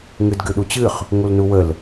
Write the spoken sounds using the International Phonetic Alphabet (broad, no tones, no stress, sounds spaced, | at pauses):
ŋ ɨ d ɡ ɨ ɗ u t͡ɕ ɨ χ | ŋ u l n u w ə l